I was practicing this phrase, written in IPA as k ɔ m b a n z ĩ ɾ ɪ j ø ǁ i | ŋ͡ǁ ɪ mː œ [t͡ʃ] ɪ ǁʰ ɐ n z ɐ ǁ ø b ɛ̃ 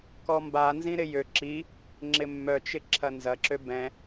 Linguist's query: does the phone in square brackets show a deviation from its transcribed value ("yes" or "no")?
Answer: no